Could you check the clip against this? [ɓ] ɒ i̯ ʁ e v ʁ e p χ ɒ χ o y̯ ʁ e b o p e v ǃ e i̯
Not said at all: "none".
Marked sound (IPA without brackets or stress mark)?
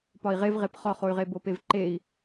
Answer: p